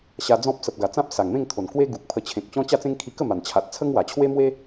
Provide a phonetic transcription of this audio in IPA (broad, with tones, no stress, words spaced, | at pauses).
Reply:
ɕa˧d͡zɔ̃˦p̚ sə˨p̚ɡa˨˩t͡sã˦p̚ sa˨˩ŋmẽ˥˧ŋt̪ʰo˨˩n kwe˦ ɡu˨k̚pʰə˧t͡ɕʰẽ˨k̚t͡ɕɔ̃˦ t͡ɕa˥˧t͡sẽ˦ŋ kʰi˧kə˥˧ma˨˩n t͡ɕʰa˨t̚t͡sʰə˦ŋwa˨˩ t͡ɕʰwe˦mwe˦